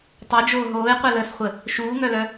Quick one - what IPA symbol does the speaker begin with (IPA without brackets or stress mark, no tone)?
tˤ